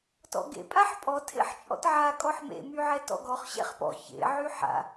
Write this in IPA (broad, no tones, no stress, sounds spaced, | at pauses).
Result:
t ɔ̰ ɡ ḛ pʼ a ħ pʼ ɔ tʰ ḛ ħ t͡ʃʼ ɔ̰ t ʕ a kʼ ɔ ħ m ḛ m y ʕ ɛ t ɔ̰ ɡ ɔ χ ɕ ɛ̰ χ p ɔ̰ ç ḛ ʕ y ħ a̰